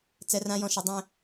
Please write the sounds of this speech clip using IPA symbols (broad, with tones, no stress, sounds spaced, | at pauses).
t͡s ɛ˦ r ã˦ j ɔ̃˨ ʃ ɐ˨ dˤ ɛ̃˦